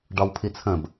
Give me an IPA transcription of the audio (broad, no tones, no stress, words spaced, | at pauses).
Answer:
ɖɒwpʰit͡sʰə̃b